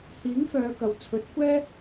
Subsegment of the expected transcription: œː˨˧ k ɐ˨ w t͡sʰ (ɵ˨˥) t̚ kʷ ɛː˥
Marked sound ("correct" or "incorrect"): correct